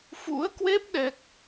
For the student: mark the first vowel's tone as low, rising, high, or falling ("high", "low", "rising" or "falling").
rising